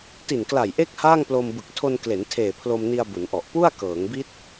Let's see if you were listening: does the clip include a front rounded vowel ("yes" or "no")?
no